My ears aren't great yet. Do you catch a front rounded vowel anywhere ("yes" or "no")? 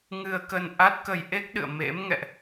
no